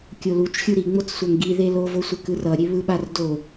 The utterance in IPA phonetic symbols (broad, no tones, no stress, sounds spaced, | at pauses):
kʲ o l u t͡ʃ xʲ u ɾ i ŋ͡m o t͡s sʷ a ŋ ɡ i ð e l o v o sʷ e k ɯ r ʌ ɾʲ e β ɯ ɓ a r d o